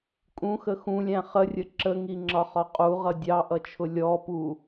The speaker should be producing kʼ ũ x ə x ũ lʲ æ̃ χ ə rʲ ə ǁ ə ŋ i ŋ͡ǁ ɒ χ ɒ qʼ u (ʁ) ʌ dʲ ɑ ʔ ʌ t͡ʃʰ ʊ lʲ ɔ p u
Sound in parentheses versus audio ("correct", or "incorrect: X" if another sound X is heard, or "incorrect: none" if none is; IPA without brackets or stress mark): correct